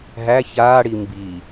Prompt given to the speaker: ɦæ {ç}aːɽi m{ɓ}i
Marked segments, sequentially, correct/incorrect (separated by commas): correct, incorrect